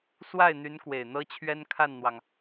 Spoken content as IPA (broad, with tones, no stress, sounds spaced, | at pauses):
s w a˥˩ ɪ̯ n̪ y˧˥ n k w e˨˩ ɪ̯ n̪ ɤ˥ t͡ɕʰ ɥ ɛ˥ n kʰ a˥˩ n n̪ w ɑ˩ ŋ